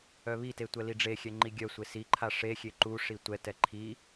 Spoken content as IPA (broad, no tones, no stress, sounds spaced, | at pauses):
œ β i t e tʷ ɛ l i ɖ͡ʐ e xʲ ɛ ŋ͡ǃ i ɡʲ œ sʷ e s i ǃʰ a ʂ e xʲ e ǃ u ʂ i tʷ ɛ t ɛ ǃʰ i